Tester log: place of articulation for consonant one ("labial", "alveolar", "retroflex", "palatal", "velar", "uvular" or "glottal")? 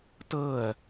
alveolar